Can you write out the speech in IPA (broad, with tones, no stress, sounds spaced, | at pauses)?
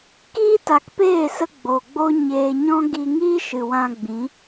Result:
k iː˦ t a˨ k p eː˦˨ s ə˧ ɡ͡b o˨ ɡ͡b o˦ ɲ eː˧ ɲ ɔ̃˦ ɡ i˧ ŋ iː˦ ʃ ɨ˨ w ã˧ ɡ͡b ĩ˨˦